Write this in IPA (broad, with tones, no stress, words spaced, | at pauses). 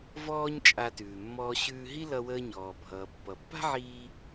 vɔː˥ɲt͡ʃʼa˧tʉː˩mːɔː˧ ɕʉː˧ɦi˥lʌ˧wəː˧ ɲɔː˩bʱʌː˩ pːʌ˩pːa̤˥ʕiː˧